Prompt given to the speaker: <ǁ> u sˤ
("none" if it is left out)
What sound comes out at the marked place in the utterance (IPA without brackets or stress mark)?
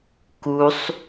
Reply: k